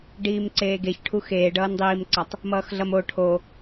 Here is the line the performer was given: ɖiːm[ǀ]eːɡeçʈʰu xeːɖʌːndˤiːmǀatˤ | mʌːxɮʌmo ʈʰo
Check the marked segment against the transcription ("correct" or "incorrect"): correct